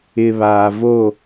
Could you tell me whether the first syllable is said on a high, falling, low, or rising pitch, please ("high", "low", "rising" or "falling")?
low